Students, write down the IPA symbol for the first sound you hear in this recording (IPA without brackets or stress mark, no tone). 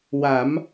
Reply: w